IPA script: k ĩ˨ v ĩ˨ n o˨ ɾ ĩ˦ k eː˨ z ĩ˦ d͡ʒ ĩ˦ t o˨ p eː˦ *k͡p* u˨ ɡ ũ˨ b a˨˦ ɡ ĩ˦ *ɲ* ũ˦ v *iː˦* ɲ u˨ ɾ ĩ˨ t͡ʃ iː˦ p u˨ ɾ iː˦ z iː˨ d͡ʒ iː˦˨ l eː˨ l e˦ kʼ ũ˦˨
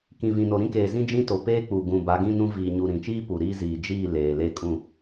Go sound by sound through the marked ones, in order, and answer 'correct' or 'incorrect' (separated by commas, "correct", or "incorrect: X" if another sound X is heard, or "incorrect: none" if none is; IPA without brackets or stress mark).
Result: correct, incorrect: n, incorrect: iː˨